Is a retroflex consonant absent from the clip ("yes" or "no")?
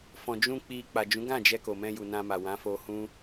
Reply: yes